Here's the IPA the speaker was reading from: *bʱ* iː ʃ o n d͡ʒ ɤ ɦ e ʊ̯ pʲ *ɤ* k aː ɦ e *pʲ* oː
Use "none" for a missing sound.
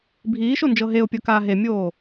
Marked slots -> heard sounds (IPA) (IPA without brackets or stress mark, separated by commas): bʱ, ɤ, mʲ